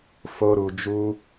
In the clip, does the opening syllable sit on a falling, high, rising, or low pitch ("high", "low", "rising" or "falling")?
high